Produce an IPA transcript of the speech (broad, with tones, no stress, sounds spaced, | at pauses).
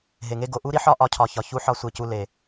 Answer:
ɦ e˨ ŋ e˧ ɡ o˨ ʔ u˦ ɾ i˦ ħ ɒ˦ ʔ ɒ˨˦ cʰ ɒ˨ ç ɒ˨ ç u˦ ħ ɒ˦ sʷ e˧ c u˧ l e˨